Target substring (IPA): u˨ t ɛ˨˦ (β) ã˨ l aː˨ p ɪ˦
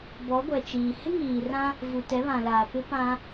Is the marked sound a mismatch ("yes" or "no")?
no